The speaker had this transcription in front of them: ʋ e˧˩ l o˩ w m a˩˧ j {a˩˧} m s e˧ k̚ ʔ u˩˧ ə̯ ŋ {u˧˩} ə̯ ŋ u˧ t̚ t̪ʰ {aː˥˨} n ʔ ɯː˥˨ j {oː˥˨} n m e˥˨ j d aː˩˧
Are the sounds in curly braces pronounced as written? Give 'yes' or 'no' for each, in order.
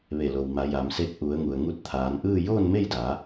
yes, no, no, yes

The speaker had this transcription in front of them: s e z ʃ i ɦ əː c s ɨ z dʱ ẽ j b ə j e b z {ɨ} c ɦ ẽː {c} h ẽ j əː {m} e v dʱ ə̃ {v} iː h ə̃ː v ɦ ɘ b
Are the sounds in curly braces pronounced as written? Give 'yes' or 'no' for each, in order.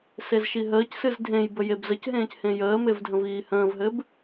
no, yes, yes, yes

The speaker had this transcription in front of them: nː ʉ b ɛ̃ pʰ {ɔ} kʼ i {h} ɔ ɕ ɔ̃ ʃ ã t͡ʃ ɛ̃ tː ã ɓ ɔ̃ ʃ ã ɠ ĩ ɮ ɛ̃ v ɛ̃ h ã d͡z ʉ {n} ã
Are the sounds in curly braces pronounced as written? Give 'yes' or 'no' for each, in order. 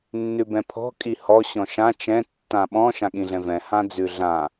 no, yes, no

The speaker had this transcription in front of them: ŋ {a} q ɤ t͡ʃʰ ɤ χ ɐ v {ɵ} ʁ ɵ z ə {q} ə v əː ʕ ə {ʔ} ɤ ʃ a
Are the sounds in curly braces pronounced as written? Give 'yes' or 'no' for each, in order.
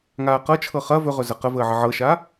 no, yes, yes, no

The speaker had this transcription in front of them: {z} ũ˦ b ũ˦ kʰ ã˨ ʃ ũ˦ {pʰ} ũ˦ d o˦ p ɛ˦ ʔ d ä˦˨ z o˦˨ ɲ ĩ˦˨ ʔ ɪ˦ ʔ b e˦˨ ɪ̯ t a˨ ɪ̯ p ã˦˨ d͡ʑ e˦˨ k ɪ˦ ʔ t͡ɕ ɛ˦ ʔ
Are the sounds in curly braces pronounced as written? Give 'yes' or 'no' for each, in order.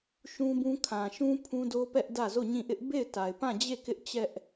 no, yes

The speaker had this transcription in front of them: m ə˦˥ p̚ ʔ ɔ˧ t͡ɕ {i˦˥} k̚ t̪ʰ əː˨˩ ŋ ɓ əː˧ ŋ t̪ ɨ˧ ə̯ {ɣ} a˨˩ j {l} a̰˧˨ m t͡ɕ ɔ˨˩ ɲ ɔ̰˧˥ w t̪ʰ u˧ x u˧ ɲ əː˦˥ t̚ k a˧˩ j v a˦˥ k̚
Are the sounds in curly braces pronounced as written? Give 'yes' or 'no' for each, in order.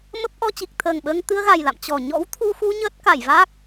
no, yes, yes

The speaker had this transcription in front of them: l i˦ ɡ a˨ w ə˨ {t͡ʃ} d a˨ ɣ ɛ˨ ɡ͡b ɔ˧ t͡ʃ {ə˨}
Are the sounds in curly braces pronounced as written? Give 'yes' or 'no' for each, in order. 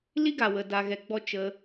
no, no

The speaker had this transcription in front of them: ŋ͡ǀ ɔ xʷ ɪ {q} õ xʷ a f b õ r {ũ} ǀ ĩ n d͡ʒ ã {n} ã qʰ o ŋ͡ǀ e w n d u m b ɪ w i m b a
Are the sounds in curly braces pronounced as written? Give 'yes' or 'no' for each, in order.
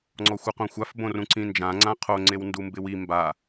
yes, yes, no

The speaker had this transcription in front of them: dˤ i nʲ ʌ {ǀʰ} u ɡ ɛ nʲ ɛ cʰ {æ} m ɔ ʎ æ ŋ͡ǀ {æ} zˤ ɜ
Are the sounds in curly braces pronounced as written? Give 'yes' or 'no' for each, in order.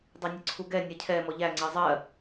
yes, no, no

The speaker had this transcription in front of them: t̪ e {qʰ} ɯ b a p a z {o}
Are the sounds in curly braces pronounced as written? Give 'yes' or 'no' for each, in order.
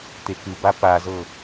no, no

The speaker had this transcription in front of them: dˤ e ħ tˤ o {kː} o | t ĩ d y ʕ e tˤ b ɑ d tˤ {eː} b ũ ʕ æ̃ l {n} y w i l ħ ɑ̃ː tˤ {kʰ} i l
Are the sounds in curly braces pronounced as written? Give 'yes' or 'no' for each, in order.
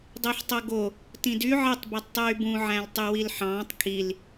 no, no, no, yes

